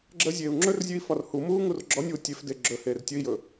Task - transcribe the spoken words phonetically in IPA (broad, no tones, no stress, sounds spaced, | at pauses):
ɡ͡ǁ əː zʲ eː u̯ ŋ͡ǁ ɵ r zʲ ʉ i̯ f ɒ r h u m uː ŋ u r ɡ͡ǁ ɔ nʲ w u tʲ e f d e ɡ͡ǁ ɵ h eː r tʲ ɵ i̯ j ɵ